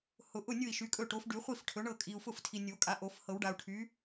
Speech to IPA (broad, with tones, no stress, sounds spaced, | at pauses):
h ʊ˨ ʔ ʊ˥˨ nʲ ʊ˥˨ i̯ ʃ y˩˥ kʼ ɵ˥˨ ʈ o˩˥ f ɖ y˨˩˦ χʷ i˥˨ f ʈʰ ɵ˩˥ ɳ ɤ˥˨ kʼ i˨ u̯ f ʊ˥˨ f tʰ i˨ nʲ o˨˩˦ kʼ a˩˥ ʔ o˨˩˦ f h ɤ˨˩˦ w ɖ a˨ u̯ ʈʰ y˩˥